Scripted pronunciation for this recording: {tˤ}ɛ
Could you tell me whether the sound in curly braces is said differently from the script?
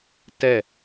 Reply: yes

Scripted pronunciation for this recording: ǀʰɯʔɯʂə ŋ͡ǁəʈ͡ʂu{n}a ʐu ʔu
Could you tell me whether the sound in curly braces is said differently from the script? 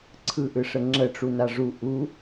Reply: no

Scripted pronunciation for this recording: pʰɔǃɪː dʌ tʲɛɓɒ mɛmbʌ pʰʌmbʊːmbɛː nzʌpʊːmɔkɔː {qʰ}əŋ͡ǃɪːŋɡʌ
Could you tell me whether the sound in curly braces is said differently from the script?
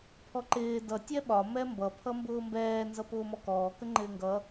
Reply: yes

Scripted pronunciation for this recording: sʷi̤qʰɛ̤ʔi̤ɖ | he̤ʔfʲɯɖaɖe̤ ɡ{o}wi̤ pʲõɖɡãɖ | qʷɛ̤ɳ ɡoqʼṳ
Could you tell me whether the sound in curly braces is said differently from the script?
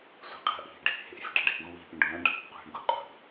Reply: yes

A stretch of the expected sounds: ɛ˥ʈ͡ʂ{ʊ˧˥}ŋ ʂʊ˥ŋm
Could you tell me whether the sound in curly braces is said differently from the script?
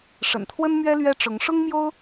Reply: no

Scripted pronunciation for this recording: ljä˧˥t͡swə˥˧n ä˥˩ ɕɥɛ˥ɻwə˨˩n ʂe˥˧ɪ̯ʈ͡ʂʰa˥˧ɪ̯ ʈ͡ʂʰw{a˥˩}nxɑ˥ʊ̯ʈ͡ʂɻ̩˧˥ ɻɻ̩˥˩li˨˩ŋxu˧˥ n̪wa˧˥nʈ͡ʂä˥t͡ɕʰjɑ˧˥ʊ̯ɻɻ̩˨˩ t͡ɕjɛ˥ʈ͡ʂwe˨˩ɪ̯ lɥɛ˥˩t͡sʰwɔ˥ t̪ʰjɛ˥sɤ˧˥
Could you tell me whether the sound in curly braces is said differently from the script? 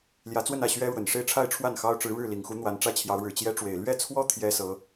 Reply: no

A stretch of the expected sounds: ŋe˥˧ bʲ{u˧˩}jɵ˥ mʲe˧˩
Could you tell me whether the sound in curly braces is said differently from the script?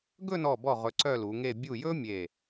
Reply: no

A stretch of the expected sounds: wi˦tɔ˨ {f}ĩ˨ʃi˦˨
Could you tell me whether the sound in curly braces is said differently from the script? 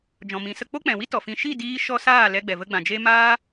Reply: no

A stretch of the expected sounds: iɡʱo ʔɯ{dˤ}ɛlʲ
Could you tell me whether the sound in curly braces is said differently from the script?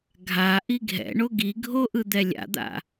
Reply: yes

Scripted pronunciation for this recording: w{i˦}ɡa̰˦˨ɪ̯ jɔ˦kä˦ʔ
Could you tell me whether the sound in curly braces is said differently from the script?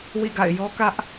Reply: yes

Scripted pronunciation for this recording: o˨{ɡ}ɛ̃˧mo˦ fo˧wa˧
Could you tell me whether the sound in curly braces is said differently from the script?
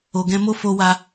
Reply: no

